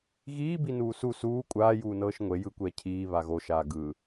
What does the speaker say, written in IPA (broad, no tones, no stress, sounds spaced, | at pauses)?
ɣ iː b i n uː s u s uː kʷʼ aː j uː n ɤː ʃ ŋʷ e j ɯ kʷ ɛː cʰ iː β a ɣ o ʃ aː ɡ ɯ